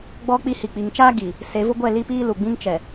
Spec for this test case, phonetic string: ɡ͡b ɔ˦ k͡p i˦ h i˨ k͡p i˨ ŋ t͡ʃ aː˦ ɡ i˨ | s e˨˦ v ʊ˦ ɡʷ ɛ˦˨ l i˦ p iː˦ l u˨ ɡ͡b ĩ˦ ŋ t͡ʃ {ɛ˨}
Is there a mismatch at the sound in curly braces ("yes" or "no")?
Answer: no